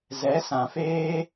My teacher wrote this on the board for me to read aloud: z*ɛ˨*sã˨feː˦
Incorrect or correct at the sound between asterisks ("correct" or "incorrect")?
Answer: incorrect